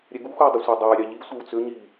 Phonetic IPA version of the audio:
ɾʲɛɡuxuj dˤʏsʷɛdˤɛjɾʲɑ ʎisʷɛw t͡sʏɲi

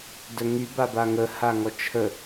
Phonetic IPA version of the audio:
dœŋy babaŋə haŋɔt͡ʃʰə

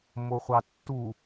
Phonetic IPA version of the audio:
moχʷɑtːu

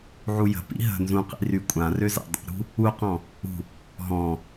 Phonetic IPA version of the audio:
ʕujə̤pḭ ɦə̤ nzũqḭ rykʷʼãrø za̰dˤṵɾṳ | uqɔ̃ | ṳ | ɦɔ̃

